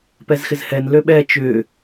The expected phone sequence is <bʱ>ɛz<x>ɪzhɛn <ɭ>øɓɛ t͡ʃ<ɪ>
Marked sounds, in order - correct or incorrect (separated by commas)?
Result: incorrect, correct, incorrect, incorrect